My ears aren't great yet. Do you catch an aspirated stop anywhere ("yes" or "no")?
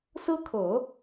yes